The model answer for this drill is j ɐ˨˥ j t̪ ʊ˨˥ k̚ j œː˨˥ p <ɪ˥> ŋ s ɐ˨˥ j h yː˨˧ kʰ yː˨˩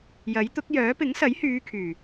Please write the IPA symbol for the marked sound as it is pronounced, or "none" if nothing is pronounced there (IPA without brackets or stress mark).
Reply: ɪ˨˥